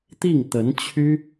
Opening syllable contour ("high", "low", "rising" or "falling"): falling